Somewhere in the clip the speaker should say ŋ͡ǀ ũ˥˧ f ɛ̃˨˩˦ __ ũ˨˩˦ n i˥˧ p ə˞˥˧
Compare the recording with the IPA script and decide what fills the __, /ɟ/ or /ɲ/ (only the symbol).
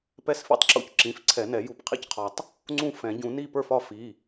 ɟ